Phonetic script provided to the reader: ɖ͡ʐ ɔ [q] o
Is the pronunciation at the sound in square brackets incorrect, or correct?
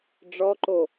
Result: incorrect